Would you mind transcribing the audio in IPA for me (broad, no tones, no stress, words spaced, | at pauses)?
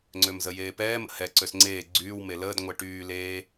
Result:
ŋ͡ǀømzəjeːpɛːm ə̰hɛ ǀøsŋ͡ǀeː ɡ͡ǀyːw meləːd ŋʷɛʈyː leː